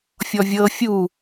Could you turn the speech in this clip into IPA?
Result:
fʲ ɔ vʲ ɤ fʲ u

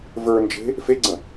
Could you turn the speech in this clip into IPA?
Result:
v ə˞ n d͡ʒ e̤ | f e ɡ͡ǀ ə̃

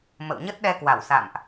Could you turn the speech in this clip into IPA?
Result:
m ə̰˧˨ w ɲ ə˦˥ t̚ ɗ ɛ˧ k w a˧˩ w s a̰˧˨ m ʔ

